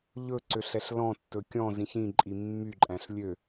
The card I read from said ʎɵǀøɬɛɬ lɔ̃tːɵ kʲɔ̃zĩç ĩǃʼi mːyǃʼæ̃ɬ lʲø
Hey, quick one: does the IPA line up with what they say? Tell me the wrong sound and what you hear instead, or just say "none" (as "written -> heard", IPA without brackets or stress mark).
none